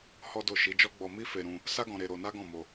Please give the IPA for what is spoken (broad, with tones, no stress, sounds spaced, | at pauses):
h ɔ˦ d o˦˨ ʃ i˨˦ d͡ʒ ɔ˦ ɡ͡b ɔ˧ m i˦ f e˧ ɾ ũ˧ | s a˦ ɡ ɔ̃˧ ɾ e˧ ɾ o˧ n a˦ ɡ ɔ̃˦˨ m o˧